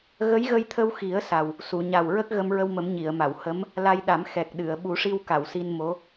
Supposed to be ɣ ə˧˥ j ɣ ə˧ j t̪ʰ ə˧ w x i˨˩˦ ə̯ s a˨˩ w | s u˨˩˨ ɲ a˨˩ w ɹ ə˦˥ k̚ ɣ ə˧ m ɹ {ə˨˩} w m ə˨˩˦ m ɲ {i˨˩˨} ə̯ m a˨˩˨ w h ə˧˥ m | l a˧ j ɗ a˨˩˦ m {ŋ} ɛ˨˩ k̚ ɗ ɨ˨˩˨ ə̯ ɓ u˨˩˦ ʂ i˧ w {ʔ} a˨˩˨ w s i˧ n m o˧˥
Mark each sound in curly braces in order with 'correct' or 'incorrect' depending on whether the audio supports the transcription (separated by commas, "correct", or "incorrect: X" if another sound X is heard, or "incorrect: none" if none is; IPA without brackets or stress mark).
incorrect: ə˧, correct, incorrect: x, incorrect: k